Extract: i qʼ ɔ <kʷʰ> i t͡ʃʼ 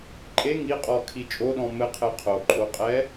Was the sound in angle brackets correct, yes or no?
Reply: no